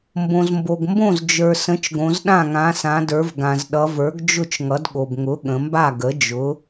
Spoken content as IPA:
m b õ˩ z m b o˩ ɡ m b õ˥˩ z d͡ʒ ə˞˩ s ə̃˩˥ t͡ʃ ɡ õ˩˧ z ɗ ã˥˩ ŋ ã˩˧ s ã˩˧ d ə˞˩˧ v ɡ ã˩ z ɗ ʌ˩˧ v ə˞˩˥ ɡ d͡ʒ ʊ˥˩ t͡ʃ ŋ ʌ˩˥ d ɠ o˩ b ŋ ʊ˩˥ ɠ ə̃˩˧ m b a˥˩ ɡ ə˩˥ d͡ʒ ʊ˩˥

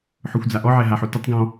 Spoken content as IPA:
ħ ʊ xʷ d͡z a ʔ ɔ ʕ ɛ ɦ a ħ o t ʊ tˤ ɡ ɔ̃

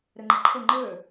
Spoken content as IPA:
ɾ ə ŋ͡ǃ ə ǃʰ ə ŋ͡ǃ ə˞

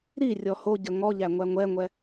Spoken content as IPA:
ɾ i rʲ ɔ h o ɟ ə ŋ ɔ ʎ æ ŋʷ æ ŋʷ ɛ ŋʷ ɛ

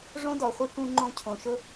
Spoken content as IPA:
ʐ õ˦ d ɔ˨ χʷ ɨ˦ k ũ˧ ŋ͡ǃ õ˧ cʰ õ˨ ʃ ʊ˦

